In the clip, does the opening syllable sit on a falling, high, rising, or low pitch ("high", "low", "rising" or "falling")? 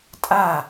falling